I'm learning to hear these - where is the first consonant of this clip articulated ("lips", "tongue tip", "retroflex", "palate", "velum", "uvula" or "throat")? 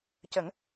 palate